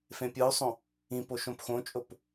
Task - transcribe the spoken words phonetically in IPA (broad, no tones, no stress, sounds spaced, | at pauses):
f ẽ pʲ ɯ u̯ sˤ õ | ĩ p o ʃ õ p x õ t͡ʃʼ o p